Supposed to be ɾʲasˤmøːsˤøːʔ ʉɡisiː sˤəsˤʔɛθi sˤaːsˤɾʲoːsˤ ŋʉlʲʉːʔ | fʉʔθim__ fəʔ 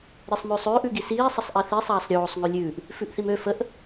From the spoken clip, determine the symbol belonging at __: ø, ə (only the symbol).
ø